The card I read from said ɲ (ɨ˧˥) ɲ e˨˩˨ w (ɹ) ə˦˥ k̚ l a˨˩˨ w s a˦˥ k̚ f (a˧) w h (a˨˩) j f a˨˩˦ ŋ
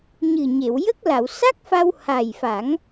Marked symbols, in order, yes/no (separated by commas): no, no, yes, yes